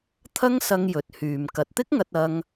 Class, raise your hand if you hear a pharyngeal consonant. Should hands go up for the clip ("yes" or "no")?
no